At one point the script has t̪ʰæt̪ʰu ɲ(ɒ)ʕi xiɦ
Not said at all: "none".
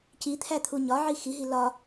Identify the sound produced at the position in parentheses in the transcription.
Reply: ɒ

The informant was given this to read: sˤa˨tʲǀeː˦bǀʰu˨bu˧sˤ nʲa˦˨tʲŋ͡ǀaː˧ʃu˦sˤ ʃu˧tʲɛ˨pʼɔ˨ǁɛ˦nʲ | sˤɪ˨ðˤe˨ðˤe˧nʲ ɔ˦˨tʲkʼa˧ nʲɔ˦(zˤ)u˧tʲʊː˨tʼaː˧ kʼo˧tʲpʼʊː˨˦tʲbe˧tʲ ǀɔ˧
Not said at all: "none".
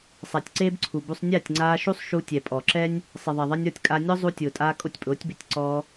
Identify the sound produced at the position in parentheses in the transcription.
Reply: zˤ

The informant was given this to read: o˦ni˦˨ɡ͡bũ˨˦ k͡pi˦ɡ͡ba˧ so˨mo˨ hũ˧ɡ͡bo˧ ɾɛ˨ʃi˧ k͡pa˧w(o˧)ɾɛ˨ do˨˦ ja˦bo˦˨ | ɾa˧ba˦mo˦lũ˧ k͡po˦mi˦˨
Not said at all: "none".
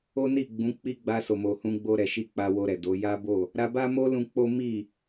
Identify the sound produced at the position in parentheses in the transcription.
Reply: o˧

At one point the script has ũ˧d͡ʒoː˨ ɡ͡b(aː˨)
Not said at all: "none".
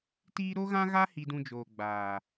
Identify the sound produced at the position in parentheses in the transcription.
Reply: aː˨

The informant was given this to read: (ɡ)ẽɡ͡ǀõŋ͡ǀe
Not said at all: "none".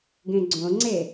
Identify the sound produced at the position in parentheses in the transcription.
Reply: ɡ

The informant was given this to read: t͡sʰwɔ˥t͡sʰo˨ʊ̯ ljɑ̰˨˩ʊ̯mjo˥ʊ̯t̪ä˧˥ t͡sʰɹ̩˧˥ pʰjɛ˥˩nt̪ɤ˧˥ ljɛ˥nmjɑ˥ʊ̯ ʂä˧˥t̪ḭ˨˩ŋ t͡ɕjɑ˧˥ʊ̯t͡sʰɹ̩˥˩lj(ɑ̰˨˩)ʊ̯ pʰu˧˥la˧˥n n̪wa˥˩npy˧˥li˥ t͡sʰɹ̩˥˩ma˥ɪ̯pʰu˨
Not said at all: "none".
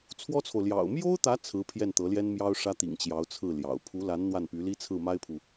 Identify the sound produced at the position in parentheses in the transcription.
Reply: ɑ̰˨˩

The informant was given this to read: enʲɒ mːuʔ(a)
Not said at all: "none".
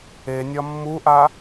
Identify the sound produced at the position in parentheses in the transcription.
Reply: a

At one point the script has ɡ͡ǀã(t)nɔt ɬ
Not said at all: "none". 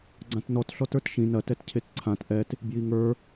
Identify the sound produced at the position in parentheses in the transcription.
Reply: t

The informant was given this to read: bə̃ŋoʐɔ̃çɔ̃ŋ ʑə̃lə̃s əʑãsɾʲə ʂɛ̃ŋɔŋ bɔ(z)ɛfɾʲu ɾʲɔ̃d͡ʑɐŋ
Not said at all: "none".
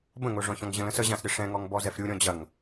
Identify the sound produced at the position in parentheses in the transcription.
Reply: z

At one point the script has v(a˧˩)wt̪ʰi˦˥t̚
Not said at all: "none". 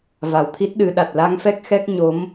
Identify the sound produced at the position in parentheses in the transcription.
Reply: a˨˩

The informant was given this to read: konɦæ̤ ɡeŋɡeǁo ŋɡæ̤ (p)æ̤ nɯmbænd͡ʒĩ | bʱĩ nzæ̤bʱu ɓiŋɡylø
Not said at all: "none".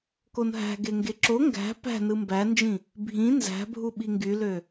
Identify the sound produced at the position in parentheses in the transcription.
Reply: p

